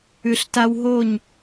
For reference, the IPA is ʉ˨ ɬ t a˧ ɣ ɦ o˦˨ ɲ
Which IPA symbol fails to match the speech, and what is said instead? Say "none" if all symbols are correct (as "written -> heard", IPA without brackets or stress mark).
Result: ɣ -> w